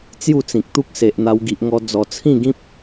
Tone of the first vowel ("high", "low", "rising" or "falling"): falling